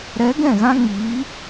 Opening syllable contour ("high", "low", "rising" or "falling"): rising